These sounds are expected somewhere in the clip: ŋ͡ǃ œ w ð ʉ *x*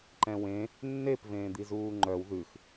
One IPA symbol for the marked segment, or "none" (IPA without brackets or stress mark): x